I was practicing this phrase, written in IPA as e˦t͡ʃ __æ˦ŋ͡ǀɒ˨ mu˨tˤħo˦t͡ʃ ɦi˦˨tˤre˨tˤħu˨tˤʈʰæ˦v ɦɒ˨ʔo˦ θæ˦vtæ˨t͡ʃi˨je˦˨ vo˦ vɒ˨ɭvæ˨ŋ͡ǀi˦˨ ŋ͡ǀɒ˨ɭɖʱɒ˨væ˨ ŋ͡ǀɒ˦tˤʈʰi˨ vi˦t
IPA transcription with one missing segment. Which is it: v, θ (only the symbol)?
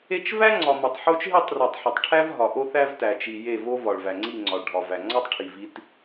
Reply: v